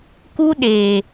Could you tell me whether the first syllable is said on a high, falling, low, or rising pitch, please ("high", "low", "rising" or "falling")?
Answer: high